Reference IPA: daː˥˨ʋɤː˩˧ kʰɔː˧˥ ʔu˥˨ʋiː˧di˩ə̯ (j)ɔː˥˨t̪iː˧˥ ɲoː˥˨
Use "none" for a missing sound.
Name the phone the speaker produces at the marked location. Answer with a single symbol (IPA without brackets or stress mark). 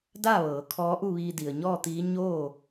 ɲ